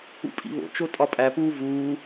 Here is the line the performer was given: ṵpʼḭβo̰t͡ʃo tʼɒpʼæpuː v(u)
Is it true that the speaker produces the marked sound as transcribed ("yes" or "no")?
no